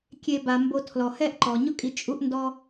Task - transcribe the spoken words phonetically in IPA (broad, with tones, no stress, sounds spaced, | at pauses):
kʲ e˨ b a˩ m b o˨ tʰ l ɔ˩ h ɛ˦ ʔ ǃ ɔ˩ ɲ ʊ˦ kʼ i˨ t͡ʃʼ u˦ ʔ n d ɔ˦